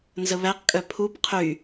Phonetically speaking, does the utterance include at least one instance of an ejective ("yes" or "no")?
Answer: yes